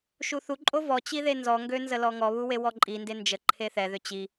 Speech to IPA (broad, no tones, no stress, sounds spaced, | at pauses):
ʃ u θ u ǃʼ o v ɔ t͡ɕ i ð e n z ɔ ŋ ɡ ø n z ə l ɔ ŋ ɔ β u w e w ɔ ǃʼ i n d e n d͡ʒ ə ǃʰ e θ ɛ ð ø t͡ɕ i